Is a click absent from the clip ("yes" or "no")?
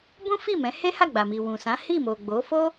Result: yes